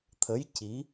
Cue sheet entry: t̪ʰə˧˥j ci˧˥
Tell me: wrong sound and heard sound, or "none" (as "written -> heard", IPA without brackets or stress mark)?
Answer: none